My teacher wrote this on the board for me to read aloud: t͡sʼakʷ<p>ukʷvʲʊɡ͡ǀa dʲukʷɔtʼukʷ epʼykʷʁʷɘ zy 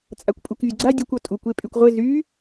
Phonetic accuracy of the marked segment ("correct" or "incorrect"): incorrect